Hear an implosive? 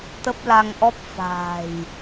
no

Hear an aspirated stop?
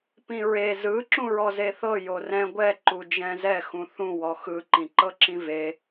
no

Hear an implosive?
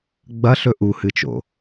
no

